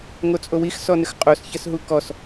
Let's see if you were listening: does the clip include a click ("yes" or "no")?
no